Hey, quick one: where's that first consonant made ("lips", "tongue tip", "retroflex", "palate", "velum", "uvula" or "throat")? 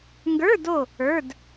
velum